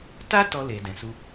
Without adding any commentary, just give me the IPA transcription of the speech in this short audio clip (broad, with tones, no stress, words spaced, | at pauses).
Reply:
ta˦ tɔ˧le˨ dɛ̃˨su˧